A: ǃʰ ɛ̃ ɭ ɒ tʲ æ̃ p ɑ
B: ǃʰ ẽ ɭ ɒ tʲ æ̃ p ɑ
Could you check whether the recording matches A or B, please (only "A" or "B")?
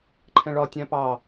A